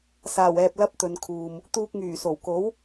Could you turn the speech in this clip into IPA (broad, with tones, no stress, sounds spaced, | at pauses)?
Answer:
s aː˨˩ w ɛː˨ p̚ l ɐ˧ p̚ t̪ ɵ˨ n kʰ uː˨ m | t̪ uː˧ k̚ ŋ yː˨˩ s o˨˩ w k o˨˥ w